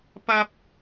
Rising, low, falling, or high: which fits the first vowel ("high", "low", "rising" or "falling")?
high